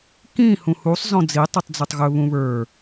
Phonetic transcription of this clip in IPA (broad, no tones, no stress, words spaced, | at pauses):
kĩ hũhusˤ zɔ̃d͡zi tˤitˤd͡zɵtˤɣɵ βũβə˞